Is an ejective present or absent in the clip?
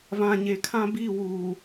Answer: absent